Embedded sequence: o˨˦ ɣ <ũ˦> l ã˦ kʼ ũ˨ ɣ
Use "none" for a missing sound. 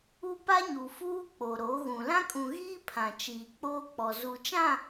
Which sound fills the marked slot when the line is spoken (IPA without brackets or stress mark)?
ũ˨